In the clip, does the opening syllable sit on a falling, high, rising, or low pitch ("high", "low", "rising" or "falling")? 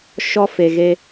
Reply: high